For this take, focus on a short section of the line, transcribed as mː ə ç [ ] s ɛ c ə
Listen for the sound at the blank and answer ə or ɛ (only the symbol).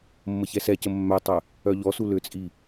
ɛ